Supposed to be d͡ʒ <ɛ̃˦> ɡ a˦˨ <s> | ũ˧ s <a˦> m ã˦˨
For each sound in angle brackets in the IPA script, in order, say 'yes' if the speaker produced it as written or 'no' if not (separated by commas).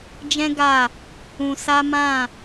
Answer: yes, no, yes